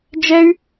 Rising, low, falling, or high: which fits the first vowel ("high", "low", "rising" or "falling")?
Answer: high